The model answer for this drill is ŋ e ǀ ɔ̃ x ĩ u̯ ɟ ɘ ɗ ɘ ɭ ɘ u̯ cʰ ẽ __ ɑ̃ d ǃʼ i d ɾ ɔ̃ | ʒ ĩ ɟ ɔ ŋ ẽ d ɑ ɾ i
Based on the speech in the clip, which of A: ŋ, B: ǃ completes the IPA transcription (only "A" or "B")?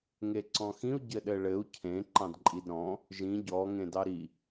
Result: B